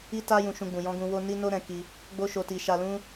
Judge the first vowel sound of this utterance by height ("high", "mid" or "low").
high